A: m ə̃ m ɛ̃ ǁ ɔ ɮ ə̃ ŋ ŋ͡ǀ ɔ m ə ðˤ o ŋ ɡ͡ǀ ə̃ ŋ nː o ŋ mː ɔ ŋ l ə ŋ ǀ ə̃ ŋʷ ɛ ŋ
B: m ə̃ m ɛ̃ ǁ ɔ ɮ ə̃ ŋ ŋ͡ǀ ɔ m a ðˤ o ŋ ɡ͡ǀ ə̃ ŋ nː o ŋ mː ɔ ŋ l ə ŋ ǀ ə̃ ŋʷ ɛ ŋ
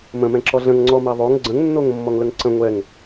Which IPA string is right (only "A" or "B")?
B